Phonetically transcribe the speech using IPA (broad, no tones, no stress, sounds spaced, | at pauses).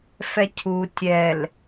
f ɛ cʰ u tʲ ɛ l